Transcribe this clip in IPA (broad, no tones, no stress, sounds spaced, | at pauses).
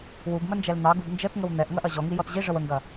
w u b m ə n d͡ʒ ɛ l n̪ ɑ ɡ u b n d͡ʒ ə t ŋ ə w n̪ ɛ ʔ ŋ ɐ ʔ ɐ ʑ ɔ ŋ i j ɔ t ʑ i ʐ ə w ə ŋ ɡ ɐ